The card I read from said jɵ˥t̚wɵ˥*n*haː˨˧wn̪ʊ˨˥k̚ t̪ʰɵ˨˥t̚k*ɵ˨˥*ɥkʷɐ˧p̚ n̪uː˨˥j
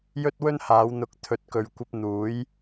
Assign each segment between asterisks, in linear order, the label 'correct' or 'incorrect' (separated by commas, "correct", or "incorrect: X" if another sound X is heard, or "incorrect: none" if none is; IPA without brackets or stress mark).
correct, incorrect: ɵ˨